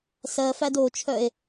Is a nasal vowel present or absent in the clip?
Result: absent